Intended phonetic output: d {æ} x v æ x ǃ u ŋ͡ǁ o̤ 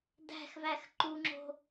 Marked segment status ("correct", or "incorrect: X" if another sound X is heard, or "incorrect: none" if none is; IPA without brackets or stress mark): incorrect: æ̤